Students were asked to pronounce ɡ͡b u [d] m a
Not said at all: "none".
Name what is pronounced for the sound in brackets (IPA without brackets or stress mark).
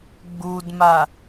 d